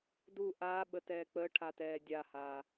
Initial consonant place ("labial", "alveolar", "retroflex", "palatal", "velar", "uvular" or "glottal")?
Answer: alveolar